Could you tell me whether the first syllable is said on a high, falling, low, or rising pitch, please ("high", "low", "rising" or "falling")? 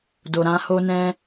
low